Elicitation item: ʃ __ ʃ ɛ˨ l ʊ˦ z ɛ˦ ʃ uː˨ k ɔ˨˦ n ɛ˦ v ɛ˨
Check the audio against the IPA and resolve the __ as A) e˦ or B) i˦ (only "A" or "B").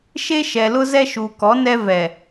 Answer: A